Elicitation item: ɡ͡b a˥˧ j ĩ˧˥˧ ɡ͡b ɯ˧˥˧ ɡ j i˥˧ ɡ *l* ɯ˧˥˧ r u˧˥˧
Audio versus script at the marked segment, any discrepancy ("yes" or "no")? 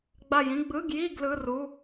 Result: no